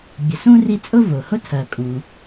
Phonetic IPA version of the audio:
bʲ ə˨ s ũ˥ r i˦ t͡sʼ ʊ˥ v ʊ˩ h ʊ˦ tʰ ɜ˩ kʼ ũ˩

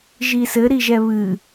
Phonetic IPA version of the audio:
ʒ i s ɘ ɾ i ʒ ɛ β ɨ

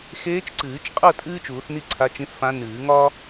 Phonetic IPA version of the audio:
x eː˧˥ t͡ʃ ǀ ɨː˨˩˦ t͡ʃ qʼ ɤ˥˨ tʼ ɨː˥ t͡ʃ uː˨˩˦ θ n i˥˨ ǀʰ a˧˥ t͡ʃ ĩ˧˥ θ f ã˧˥ n ɨː˨˩˦ ŋ ɒ˥

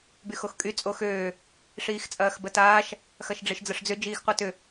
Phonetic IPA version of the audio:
b y x o x kʼ y t͡sʼ o x øː | ʂ iː x t͡sʼ ɐː x b ə t aː ʃ | x ɐ ʃ ɖ͡ʐ e ʃ d͡z ə ʂ d͡z ʏ d͡ʒ iː x qʷ a t ʏ

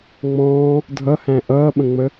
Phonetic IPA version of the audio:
ŋ͡m ɔ̃ː | dʱ ʌ h æ̃ ʔ ʌː ɓ ə̃ ŋ͡m ə

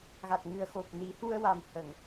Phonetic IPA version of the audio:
ɣ a˨˩ t̚ ŋ ɨ˨˩ ə̯ x o˨˩ p̚ n i˨˩˦ h u˧ ə̯ w a˨˩ m h ə˨˩˨ ŋ

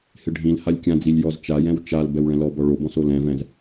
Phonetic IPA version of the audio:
h ɪ ɖʱ ĩ l h a lʲ kʲ ã d͡z i lʲ j ɔ z t͡ʃ a j ɛ̃ w t͡ʃ a l b ɛ w ɭ ɛ̃ l ɔ b ɔ ɭ o b ɔ̃ s o l ɛ̃ v ɛ̃ z

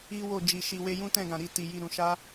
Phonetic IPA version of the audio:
i˦ w o˦˨ d͡ʒ i˨ ʃ i˨ w e˧ j ũ˦ t ɛ̃˦˨ ɡ ã˨ ɾ i˧ t i˨ j i˧ ɾ ũ˨ ʃ a˧

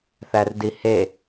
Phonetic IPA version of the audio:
θ æ r d i h e

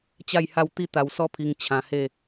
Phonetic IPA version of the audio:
t͡ɕ a˥˧ j h a˥˧ w t̪ i˦ t̪ a˧ w s ɔ˥˧ pʰ i˧ ŋ t͡ɕʰ ã˧ h e˥˧

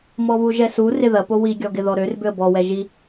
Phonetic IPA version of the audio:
m ɔ β u ʒ ɛ s u r ɪ ð ɐ p o w i ɡʲ ɔ ɡ ɪ ð ɔ ɾ ø r b ʏ ə̯ b ɔ w ɛ ʒ i

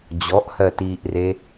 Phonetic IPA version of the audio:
d͡ʑ ɔ ʔ h ɜ t iː ʔ r e

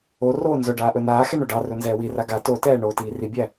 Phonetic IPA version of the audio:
o r oː n z ɵ ɖ aː ʔ ɵ n aː x ɛ ɳ o ɖ ɑ r ɵ n z ɛː w i r a ɡ a t o t ɛː ɳ oː t iː r i bʲ æ

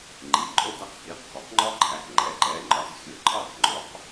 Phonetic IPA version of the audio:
ŋ͡ǃ i˩˧˩ ǃʼ o˥˨ d̪ æ˥ q h i˩˧˩ q k ɒ˩˥ k ŋ͡ǃ ɒ˥ ǃʰ æ˩˧˩ k ŋ͡ǃ ɛ˩˥ ǃ ɛ˩˧˩ ŋ͡ǃ ɒ˧˩˧ z xʲ ɵ˧˩˧ ǃʰ ɑ˥˨ q ŋ͡ǃ o˩˥ q

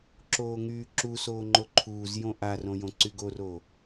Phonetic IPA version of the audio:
ǁ oː ŋ yː ǁ u s oː ŋ͡ǃ o ǃʰ uː z j õ ʔ a r õ j õ ǀ y ɡ o r oː

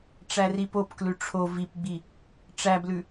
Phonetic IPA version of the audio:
ʈ͡ʂ æ r i p o p k l ʉ ʈ͡ʂʰ o v i p ɡ͡b i | ʈ͡ʂ æ b l ʉ

